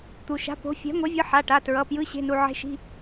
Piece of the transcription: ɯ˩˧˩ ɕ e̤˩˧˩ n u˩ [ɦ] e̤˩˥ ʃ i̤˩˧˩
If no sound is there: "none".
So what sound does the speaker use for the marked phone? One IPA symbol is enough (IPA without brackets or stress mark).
ʕ